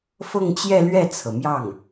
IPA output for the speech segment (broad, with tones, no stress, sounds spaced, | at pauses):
f ɤ˥˧ ŋ t͡ɕ j ɛ˥˧ l ɥ ɛ˥˩ t͡sʰ ɤ˩ m j ɑ˥˩ ŋ